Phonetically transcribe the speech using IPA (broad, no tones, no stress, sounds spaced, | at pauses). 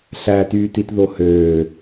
ɬ æ t yː t i t ð o h øː